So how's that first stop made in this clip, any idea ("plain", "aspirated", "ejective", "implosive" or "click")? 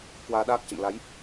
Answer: plain